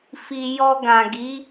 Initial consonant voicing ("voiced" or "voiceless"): voiceless